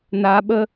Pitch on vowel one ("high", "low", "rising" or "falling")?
high